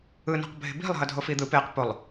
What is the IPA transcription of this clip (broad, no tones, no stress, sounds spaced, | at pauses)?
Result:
ɯ n o̤ q bʱ e̤ b i̤ lˠ ɦ ʌ dʱ o f i d̪ ɯ p e q p o lˠ